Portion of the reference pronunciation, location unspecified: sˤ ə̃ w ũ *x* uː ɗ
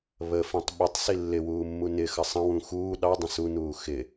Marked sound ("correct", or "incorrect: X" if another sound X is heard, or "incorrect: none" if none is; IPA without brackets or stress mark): correct